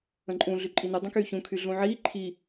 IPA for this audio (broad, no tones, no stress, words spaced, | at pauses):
ə̃ǃʼũ ɮyǃʼiny dˤə̃kyːçũ kʰyɮũʕiː ǃʰi